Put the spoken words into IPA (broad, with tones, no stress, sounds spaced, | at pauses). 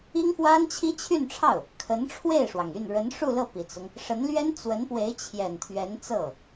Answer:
i˥ ŋ f w a˥ n t͡ɕʰ i˥ t͡ɕʰ y˥˧ n ʈ͡ʂʰ ɑ˥˩ ʊ̯ | kʰ ə˧˥ n ʈ͡ʂʰ w e˥˩ ɪ̯ ʂ w ɑ˩ ŋ y˥˩ n ɻ ə˧˥ n ʂ u˥˧ l ɤ˥˩ p i˨˩ t͡s ʊ˦ ŋ | ʂ ə˧˥ n l ɥ ɛ˥ n t͡s w ə˧˥ n p w e˧˥ ɪ̯ t͡ɕʰ j ɛ˨˩ n t̪ʰ ɥ ɛ˧˥ n t͡s ɤ˥˩